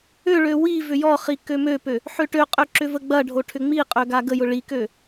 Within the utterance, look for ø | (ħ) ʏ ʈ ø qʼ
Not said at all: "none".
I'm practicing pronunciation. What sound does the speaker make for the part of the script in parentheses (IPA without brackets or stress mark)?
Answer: ħ